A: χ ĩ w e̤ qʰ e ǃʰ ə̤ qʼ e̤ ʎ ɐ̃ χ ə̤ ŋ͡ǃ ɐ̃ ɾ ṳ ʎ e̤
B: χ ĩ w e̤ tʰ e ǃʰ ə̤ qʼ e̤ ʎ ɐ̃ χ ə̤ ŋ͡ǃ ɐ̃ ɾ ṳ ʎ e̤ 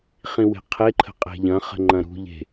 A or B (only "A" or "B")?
A